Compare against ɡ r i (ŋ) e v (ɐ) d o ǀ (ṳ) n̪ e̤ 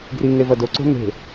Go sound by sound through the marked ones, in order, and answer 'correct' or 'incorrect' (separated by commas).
correct, correct, incorrect